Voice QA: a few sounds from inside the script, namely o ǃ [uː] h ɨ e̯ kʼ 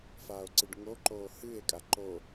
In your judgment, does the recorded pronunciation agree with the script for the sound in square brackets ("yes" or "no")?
no